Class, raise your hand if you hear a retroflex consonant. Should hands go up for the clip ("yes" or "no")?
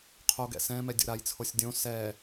no